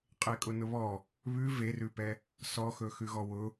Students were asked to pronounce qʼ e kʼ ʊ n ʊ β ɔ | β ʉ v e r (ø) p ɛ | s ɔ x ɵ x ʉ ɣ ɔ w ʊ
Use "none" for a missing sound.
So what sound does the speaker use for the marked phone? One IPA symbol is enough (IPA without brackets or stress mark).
ʉ